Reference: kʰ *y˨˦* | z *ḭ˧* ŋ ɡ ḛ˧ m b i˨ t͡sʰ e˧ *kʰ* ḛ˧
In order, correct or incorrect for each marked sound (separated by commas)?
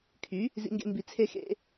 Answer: correct, correct, incorrect